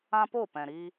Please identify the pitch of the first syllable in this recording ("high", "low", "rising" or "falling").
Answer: high